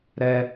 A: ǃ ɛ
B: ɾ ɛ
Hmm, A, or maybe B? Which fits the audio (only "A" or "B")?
B